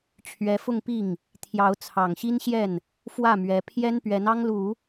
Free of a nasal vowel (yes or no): yes